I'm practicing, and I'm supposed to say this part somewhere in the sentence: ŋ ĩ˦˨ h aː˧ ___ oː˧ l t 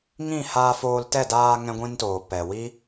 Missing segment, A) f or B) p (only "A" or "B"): A